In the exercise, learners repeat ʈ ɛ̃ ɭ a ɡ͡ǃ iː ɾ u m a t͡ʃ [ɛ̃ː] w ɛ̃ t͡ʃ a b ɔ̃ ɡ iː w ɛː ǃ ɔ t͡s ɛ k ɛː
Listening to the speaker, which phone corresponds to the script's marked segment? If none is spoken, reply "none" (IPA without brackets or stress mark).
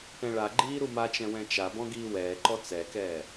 ɛ̃